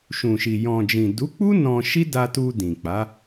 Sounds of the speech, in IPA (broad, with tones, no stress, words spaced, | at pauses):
ʃũ˨ʃi˨ jɔ̃˨d͡ʒĩ˨du˨˦k͡pu˦ nɔ̃˧ʃi˦ da˧tu˧ dĩ˨k͡pa˨˦